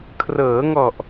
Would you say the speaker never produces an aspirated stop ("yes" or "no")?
no